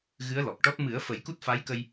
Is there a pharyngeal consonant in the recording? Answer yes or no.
no